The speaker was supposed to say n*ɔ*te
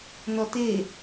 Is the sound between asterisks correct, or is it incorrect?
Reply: correct